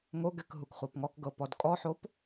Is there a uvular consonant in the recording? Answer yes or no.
yes